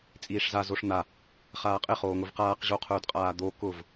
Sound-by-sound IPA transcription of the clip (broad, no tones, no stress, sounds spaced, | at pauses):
t͡sʼ iː ʂ z a z o ʂ n̪ a | χ aː qʼ ɪ χ oː ŋ ʊ v q aː q ʑ o qʰ ʊː d qʼ aː d̪ o k ʊ v